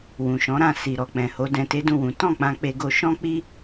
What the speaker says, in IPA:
w ũ˨ ʃ ɔ̃˨˦ ɾ ã˧ s i˨ ɾ ɔ˨ k͡p ɛ̃˨ h o˨˦ d ɛ̃˧ t e˦ d ũ˦˨ w ũ˨˦ t ɔ̃˦˨ k͡p ã˧ k͡p e˧ ɡ o˧ ʃ ɔ̃˦ k͡p i˦

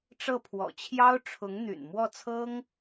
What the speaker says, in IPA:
ʈ͡ʂ ɤ˥˩ pʰ w ɔ̰˨˩ t͡ɕʰ j ɑ˥ ʊ̯ ʈ͡ʂʰ ʊ˧˥ ŋ n̪ y̰˨˩ n m w ɔ˥˩ t͡sʰ ɤ˥ ŋ

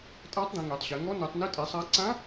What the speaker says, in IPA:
tʼ aː˧˥ tˤ d̪ ĩ˩˧ ŋ e˩˧ tˤ ɕ ɛ˩˧ ŋ ɔ˧˥ n u˩˧ tˤ n i˧˥ tʼ e˩˥ sˤ aː˧˥ ǀ ã˧˥

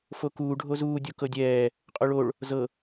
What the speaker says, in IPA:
f o k uː ɖʱ o z uː dʲ o k ɤ dʲ ɛː | qʼ o ɭ o ɭ | z ɤ

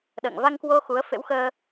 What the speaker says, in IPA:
ɗ ə̰ː˧˨ ŋ v a˧ ŋ k w o˧ x u˨˦ ə̯ f ḛ˧˥ w x əː˧

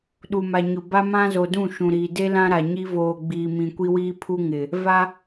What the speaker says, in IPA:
ɗ u˨ m a˨ ɲ ʊ˨ b a˦ m ã˦ z o˨ d ũ˦˨ ʃ ũ˨ ɾ iː˨ d e˦ l ã˦ ɾ a˨ ɲ i˦ v oː˨ ɡ͡b iː˨ m ĩ˨ kʷ i˦ w iː˦ pʰ u˦ ŋ ɪ˨ | v a˦

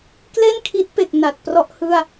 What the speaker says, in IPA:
k l e˥˩ n kʰ i˦˥ t̚ p e˨˩ k̚ n a˨˩ t̚ p r ɔ˥˩ ʔ h ɯ˥˩ a̯

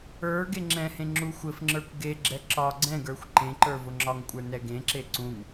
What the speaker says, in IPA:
ə˞ ɡ e ŋ͡ǁ ɛ̃ h ẽ ŋ͡ǁ u xʷ ɘ f ŋ͡ǁ ə˞ kʷ ɡ e ɡ͡ǁ ɛ ǁ ɒ ɡ͡ǀ ɛ̃ ɡ ə˞ xʷ ǃ ẽ ǃ ə˞ v ʊ ŋ͡ǁ ɒ ŋ kʷʼ ə˞ n ɛ ɡ ẽ ǁ e ǀ ũ ŋ

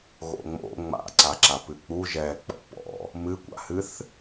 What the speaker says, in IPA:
ɣ o̰ ŋ͡m o̰ ŋ͡m a̰ ǀ a ǁ a p ɨ k͡p u ʒ ɛ k͡p ɔ̰ p ɔ̰ | m ɨ kʷ a̰ h ɨ θ

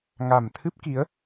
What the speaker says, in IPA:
ŋ a˨˩ m t̪ʰ ɨ˦˥ p̚ k i˨˦ ə̯

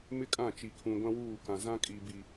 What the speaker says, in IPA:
m ɪ˦ kʼ ã˦˨ t͡ʃ i˨ kʰ ũ˨ ɡʷ ã˦ w uː˦˨ k ã˨ z ã˦ kʼ i˨ b i˨

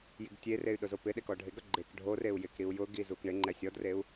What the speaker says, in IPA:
j i ɡ tʲ e r e y̯ ɗ ʊ z o p ɪ ɗ e k ɔ ɖʱ e ɡ ɾ ʊ ɡ͡ǃ e k ɖʱ o r e u̯ j ɪ k ɾ i u̯ j ʊ ɡ i z u k ɳ ɪ ŋ͡ǃ ɛ sʲ ɔ d r e u̯

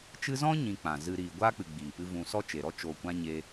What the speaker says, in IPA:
t͡ʃ ɨ˧ z ɔ̃˦ ɲ ĩ˧ k͡p ã˨ z ɨ˨ ɾ iː˨ ɡʷ aː˦ k͡p ɨ˨ ɡ͡b iː˨ p ɨ˧ v ũ˨ s ɔ˦ t͡ʃ e˨ ɾ ɔ˦ t͡ʃ o˨ kʷ ã˦ ɲ e˧

